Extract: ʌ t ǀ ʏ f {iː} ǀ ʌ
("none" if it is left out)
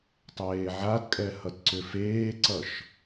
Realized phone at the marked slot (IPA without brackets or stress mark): eː